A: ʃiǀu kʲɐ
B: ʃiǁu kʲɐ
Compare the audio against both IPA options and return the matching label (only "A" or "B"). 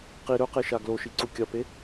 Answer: A